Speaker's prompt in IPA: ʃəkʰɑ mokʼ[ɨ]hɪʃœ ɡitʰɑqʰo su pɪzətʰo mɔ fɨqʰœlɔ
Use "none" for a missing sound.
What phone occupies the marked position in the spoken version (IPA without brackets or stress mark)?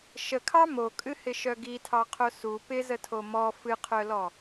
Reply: ɨ